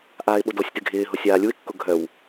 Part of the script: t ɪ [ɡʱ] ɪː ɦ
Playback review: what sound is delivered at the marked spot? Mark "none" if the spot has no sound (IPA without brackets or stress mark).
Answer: ɡʱ